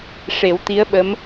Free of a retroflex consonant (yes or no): no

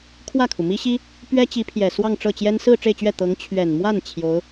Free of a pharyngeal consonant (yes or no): yes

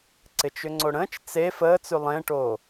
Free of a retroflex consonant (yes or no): no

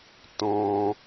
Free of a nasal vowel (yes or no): no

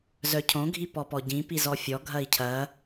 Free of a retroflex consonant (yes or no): yes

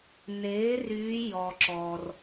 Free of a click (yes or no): no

